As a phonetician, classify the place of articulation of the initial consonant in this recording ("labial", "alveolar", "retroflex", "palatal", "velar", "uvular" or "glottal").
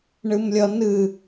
retroflex